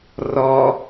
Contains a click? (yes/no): no